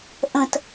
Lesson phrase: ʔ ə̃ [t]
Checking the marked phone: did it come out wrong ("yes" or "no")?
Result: no